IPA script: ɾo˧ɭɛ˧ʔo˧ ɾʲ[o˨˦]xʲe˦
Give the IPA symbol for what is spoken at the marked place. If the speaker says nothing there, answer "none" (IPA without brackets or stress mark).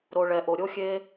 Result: o˦